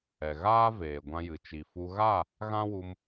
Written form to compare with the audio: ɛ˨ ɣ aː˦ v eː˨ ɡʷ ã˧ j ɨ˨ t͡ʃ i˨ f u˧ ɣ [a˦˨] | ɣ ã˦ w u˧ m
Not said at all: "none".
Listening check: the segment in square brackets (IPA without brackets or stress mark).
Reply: a˦˨